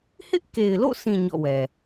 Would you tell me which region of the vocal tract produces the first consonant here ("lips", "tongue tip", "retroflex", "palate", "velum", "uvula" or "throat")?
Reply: throat